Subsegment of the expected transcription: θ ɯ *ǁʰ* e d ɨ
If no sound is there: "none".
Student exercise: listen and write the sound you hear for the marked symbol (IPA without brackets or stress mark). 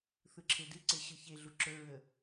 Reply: ǁʰ